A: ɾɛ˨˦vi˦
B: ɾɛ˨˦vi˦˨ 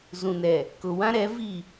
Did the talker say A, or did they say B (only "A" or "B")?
B